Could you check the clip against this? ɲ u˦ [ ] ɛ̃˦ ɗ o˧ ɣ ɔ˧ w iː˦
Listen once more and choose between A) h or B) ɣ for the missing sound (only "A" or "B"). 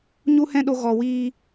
A